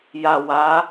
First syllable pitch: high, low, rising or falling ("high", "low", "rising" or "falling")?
low